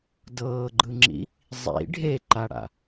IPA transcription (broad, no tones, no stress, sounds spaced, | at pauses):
d ɤː ɡ͡ǃ ɯ ŋ͡ǁ ḭ | zˤ ḭ ɖʱ e ǃ a ɽ a̰